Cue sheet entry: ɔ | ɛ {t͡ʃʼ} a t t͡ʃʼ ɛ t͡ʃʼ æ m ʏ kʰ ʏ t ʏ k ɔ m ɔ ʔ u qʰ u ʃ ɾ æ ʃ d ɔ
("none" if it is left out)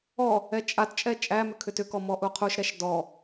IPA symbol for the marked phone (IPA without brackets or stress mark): t͡ʃʼ